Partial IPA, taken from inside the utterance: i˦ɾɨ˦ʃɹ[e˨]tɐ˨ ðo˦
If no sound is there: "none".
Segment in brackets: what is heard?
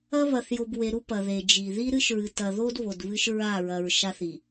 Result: ɨ˨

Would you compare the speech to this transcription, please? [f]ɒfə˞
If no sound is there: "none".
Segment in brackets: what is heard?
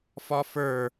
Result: f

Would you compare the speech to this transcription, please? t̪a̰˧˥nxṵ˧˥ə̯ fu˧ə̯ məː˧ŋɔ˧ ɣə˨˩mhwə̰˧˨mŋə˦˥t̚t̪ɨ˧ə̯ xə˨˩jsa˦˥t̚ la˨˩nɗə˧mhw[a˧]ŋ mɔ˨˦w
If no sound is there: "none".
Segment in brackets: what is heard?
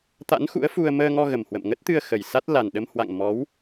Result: a̰˧˨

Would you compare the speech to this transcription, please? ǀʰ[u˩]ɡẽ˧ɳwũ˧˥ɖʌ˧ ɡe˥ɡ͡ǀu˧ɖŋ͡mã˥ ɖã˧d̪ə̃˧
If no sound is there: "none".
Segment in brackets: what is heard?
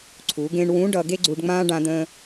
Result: u˩˧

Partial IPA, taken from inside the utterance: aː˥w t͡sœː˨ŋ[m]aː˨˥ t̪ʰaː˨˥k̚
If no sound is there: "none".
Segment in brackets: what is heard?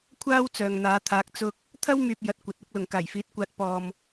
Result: n̪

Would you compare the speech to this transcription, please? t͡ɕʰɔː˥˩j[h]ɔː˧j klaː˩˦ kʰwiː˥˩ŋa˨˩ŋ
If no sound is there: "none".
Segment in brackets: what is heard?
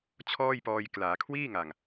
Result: p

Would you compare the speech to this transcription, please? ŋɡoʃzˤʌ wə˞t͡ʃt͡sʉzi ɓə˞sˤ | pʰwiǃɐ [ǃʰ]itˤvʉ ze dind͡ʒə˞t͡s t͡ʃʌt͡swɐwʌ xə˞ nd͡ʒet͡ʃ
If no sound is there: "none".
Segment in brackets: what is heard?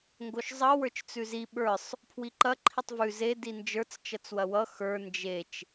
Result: ǃʰ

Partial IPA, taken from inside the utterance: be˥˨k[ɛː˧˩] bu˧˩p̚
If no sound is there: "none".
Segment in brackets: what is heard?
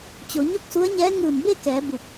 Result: ɛː˩˧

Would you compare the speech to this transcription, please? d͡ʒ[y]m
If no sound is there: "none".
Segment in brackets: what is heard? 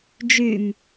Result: y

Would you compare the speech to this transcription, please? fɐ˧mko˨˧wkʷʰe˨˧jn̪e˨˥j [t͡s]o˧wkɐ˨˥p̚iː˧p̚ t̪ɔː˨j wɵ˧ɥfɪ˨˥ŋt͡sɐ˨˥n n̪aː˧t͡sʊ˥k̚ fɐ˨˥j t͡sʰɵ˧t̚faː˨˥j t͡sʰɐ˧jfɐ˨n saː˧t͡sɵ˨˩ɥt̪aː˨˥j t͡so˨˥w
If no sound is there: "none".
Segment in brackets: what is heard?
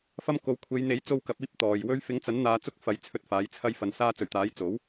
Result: t͡s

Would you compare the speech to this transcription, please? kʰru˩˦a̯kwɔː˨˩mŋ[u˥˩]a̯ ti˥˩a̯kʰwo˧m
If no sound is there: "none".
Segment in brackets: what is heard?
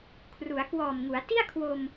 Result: u˩˦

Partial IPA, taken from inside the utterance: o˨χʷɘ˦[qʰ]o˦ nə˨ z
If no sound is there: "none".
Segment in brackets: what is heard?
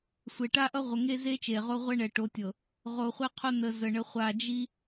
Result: qʰ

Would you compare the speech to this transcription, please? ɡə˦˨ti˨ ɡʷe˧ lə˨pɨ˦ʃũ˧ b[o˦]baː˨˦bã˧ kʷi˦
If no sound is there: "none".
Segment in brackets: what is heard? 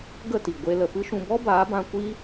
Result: ɔ˦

